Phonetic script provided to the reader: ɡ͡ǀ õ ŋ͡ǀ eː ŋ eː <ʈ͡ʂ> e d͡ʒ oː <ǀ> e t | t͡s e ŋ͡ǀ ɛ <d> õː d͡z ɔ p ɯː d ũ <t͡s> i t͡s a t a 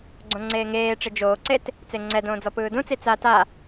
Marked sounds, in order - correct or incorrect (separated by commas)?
correct, correct, correct, correct